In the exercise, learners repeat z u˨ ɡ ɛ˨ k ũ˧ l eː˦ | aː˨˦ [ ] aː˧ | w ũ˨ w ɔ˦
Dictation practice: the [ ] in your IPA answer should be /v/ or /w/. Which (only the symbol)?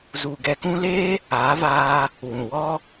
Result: v